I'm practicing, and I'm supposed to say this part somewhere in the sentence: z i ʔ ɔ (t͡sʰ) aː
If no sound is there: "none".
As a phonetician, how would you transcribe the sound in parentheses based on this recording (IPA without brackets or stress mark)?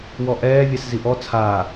t͡sʰ